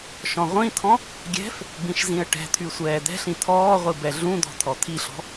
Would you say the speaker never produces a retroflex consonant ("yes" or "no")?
no